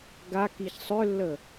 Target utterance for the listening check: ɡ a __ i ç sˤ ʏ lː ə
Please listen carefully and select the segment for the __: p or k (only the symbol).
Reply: k